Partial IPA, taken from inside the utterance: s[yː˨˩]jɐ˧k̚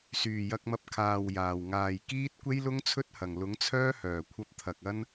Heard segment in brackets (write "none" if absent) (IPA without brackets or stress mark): yː˨˩